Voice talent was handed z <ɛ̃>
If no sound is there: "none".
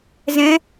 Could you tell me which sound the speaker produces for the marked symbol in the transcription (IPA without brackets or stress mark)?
ɛ̃